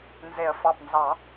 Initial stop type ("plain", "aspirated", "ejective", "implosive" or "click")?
plain